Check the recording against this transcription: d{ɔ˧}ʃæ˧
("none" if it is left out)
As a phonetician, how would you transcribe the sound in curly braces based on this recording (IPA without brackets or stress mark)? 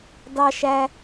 ɑ˧